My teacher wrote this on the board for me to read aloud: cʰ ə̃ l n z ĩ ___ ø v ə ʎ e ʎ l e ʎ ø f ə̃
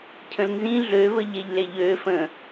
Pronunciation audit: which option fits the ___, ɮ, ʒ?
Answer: ɮ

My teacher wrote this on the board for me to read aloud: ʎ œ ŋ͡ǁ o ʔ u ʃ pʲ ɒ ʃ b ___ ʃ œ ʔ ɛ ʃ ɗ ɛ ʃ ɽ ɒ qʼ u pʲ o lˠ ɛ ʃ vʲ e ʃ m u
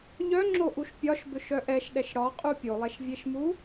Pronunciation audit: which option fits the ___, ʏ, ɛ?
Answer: ʏ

